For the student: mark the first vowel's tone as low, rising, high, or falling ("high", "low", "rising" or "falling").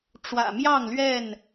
low